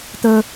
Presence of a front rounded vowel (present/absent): absent